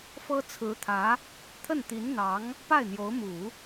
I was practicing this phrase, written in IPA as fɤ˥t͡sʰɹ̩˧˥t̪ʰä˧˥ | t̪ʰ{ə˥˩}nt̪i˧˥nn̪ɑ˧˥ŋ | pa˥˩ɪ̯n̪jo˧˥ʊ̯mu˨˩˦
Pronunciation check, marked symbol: correct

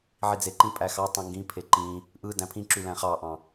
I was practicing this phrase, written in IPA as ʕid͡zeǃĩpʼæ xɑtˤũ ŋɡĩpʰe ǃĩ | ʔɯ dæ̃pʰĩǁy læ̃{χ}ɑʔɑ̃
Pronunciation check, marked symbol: correct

